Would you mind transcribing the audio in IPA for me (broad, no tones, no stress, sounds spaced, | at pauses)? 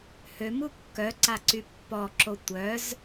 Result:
h ø m u kː œ ǀ a ǀ y pː ɔ ǁ o tʷ œ z